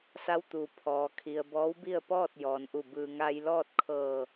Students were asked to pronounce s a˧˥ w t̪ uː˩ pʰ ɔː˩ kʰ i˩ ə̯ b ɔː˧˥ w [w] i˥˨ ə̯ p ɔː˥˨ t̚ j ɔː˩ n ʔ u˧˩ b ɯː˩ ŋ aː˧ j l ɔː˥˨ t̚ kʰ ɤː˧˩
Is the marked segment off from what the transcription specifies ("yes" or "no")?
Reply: yes